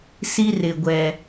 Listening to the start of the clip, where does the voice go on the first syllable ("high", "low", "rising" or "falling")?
high